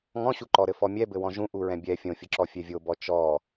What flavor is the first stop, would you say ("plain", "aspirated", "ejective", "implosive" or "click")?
click